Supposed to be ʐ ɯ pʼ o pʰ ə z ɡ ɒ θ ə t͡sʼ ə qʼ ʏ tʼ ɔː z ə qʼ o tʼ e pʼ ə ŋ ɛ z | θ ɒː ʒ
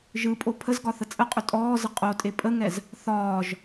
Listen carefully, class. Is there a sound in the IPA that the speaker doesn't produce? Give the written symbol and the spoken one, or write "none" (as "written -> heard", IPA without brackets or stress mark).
ʐ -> ʒ